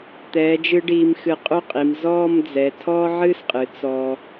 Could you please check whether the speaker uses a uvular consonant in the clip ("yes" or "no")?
yes